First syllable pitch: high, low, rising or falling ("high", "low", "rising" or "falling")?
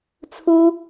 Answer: high